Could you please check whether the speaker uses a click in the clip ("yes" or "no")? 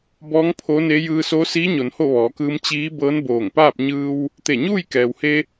no